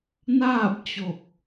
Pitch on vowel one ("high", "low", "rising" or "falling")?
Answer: falling